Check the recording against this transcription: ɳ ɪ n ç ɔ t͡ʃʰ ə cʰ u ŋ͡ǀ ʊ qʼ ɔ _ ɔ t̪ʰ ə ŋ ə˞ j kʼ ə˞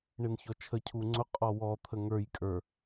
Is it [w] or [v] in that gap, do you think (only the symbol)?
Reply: w